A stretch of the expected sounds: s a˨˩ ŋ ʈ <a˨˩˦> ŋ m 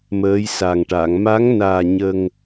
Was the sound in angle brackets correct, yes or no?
no